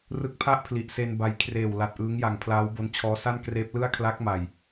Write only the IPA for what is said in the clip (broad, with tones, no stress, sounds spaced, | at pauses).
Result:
r ɯ˦˥ k̚ pʰ a˥˩ ʔ pʰ l i˨˩ ʔ s e˧ n b a˧ j kʰ r eː˨˩ w l a˨˩ t̚ ʔ ɯː˦˥ ŋ j a˨˩ ŋ pʰ l aː˦˥ w b o˦˥ n t͡ɕʰ ɔː˦˥ s a˥˩ n k r eː˦˥ p̚ l ɯ˥˩ a̯ kʰ l a˦˥ k̚ m a˨˩ j